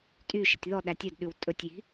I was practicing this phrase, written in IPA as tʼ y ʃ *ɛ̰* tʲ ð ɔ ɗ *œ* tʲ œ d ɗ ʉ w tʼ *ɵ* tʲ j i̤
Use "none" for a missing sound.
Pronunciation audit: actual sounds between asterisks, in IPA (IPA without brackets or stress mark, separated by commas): ɛ̰, æ, ɵ